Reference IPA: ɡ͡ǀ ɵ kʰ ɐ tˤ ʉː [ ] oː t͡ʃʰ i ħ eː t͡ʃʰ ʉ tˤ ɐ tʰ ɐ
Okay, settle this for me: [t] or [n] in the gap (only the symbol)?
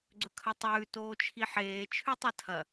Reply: t